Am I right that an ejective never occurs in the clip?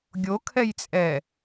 no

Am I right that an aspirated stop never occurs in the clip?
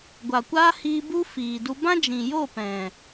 yes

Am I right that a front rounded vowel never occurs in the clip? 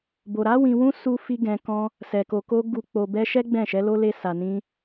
yes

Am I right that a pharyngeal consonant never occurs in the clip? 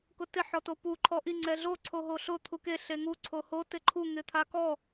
no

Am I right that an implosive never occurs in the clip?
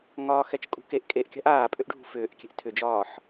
yes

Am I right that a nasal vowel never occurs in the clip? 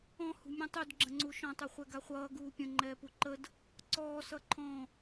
no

